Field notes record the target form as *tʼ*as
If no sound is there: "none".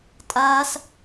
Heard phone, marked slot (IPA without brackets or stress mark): tʼ